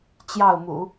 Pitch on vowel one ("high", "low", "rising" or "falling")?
falling